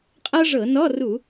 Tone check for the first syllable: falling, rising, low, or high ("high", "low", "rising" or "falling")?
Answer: high